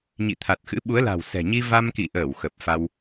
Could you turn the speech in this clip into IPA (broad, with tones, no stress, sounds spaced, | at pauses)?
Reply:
ɲ ḭ˧˨ t̪ʰ a˨˩ t̚ x ɨ̰˧˥ ɓ u˨˦ ə̯ l a̤˨˩ w s ɛ̤˨˩ ɲ i˧ v a˧ m k ḭ˧˨ ʔ əː˧˩ w x ə˨˩ p̚ f a˧ w